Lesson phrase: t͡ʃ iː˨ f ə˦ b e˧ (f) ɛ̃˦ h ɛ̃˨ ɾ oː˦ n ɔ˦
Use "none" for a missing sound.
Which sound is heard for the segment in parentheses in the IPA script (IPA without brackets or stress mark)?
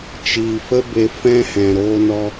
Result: f